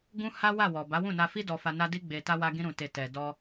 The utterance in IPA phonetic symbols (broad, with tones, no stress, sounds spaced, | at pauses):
ɡ ũ˦ h a˦ w a˦˨ w ɔ˨ b a˨˦ w ũ˦˨ n a˧ f i˦ d ɔ˧ f a˧ n a˦ d i˧ ɡ͡b e˨ t a˧ w a˧ ɡ ĩ˧ ɾ ũ˨ t e˨ t ɛ˨ d ɔ˧